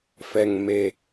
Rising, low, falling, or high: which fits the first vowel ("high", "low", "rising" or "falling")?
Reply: low